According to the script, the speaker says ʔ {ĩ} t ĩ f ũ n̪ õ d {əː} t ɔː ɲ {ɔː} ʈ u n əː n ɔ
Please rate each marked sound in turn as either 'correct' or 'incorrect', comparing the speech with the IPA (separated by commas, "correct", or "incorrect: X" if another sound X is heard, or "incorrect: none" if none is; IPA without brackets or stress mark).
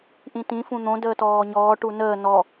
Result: correct, correct, correct